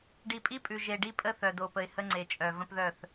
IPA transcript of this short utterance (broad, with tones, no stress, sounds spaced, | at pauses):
ɖ i˨ pʼ i˦ pʼ ʉ˨ ʒ e˨ ɖ i˦ pʼ ə˦ θ œ˨ d o˨ p ə˨ ɪ̯ h ə˦ ŋ͡ǀ e˨ t͡ʃʼ œ˨ v ə̃˦ p ð œ˦˨ θ